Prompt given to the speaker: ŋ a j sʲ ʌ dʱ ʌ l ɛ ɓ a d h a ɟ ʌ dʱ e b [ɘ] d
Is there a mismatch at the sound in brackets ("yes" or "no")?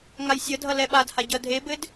no